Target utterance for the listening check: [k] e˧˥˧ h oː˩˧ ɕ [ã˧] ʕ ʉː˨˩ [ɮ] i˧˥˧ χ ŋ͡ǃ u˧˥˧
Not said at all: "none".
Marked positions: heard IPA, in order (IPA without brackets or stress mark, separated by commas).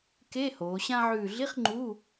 k, ã˧, ɮ